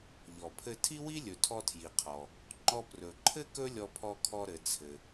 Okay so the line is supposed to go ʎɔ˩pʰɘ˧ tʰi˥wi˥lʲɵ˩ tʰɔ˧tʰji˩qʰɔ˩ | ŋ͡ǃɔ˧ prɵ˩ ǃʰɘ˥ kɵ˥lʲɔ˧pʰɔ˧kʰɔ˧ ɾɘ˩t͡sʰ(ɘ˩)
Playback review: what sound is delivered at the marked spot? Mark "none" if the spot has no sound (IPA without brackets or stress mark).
ɘ˩